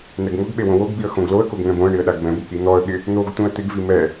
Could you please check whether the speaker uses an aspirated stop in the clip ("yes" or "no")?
no